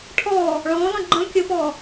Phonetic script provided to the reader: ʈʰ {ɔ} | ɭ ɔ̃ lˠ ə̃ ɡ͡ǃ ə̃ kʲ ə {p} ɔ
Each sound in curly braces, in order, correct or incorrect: correct, correct

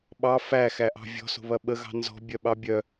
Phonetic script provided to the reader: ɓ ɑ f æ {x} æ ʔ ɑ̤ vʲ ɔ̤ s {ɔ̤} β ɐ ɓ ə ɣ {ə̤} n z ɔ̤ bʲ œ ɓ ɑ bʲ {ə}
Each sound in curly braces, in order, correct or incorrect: correct, incorrect: o̤, incorrect: ɑ̤, incorrect: œ

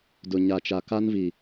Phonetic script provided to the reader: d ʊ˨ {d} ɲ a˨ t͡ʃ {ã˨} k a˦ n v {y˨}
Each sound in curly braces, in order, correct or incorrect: incorrect: none, incorrect: a˨, incorrect: i˨

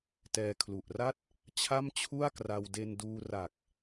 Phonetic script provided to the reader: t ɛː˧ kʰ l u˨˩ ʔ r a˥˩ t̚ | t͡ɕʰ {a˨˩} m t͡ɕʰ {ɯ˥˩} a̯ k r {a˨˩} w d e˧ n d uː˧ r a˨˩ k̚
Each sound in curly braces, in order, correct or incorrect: incorrect: a˥˩, incorrect: u˥˩, incorrect: a˧

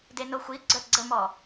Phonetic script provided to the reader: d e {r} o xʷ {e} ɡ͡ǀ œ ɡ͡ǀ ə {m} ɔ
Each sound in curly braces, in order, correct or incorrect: incorrect: n, incorrect: i, correct

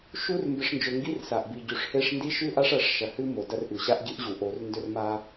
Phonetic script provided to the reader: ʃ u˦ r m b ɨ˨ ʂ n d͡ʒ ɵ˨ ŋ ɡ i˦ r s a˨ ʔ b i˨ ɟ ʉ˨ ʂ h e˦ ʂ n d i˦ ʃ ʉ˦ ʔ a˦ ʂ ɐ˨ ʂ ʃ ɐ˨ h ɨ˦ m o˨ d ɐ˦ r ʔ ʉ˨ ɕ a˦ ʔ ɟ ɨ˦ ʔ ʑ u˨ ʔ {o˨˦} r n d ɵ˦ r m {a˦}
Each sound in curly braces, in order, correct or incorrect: correct, correct

